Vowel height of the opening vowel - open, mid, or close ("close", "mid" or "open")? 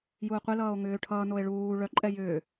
close